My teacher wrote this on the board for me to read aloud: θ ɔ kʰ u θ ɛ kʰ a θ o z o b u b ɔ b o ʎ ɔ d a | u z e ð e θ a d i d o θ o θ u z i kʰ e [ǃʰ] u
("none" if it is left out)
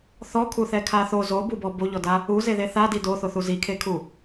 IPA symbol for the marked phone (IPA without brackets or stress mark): kʰ